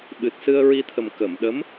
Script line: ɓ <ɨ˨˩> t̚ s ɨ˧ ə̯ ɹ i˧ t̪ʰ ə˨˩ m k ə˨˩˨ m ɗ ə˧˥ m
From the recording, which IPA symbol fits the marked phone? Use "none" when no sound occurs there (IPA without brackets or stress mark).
ɨ˨˩